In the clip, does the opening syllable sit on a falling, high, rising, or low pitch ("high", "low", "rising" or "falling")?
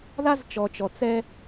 high